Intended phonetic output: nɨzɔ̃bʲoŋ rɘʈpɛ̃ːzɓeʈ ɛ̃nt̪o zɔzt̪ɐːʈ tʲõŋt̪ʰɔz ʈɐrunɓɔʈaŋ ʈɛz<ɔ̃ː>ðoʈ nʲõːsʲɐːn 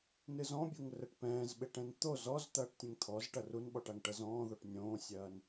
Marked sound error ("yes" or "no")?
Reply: no